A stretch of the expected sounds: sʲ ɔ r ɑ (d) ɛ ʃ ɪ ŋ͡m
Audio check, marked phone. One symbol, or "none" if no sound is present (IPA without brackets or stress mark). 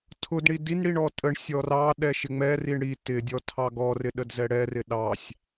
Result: ɗ